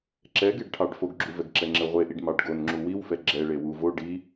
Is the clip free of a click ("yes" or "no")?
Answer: no